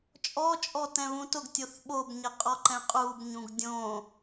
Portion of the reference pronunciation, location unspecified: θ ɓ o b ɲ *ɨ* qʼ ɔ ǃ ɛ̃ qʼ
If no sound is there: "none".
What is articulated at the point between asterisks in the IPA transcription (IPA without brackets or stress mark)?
ɪ